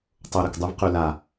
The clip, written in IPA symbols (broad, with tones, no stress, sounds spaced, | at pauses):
tˤ o˨ ɾ ə˨ k dˤ u˧ v q ʉ˨ l a˨